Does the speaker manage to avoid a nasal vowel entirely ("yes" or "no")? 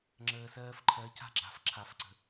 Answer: yes